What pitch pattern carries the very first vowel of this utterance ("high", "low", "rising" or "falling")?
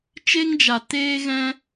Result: high